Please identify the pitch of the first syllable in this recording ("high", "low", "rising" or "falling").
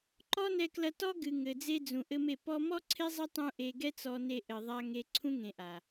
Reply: high